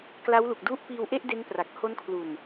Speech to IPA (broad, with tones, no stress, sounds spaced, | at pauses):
k l a˦˥ w l u˨˩ k̚ d u˦˥ ʔ p iː˧ w ʔ e˥˩ ʔ d e˦˥ n p r a˨˩ k̚ h o˦˥ n kʰ l u˨˩ n